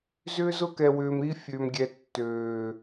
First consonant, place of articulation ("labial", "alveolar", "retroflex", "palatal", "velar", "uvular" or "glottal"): alveolar